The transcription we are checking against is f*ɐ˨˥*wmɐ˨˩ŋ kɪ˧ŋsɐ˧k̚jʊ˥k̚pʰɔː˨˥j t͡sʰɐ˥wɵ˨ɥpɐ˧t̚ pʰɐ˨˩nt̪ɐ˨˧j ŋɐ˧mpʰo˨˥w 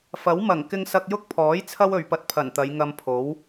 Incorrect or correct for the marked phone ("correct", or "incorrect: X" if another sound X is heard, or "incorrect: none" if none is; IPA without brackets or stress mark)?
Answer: correct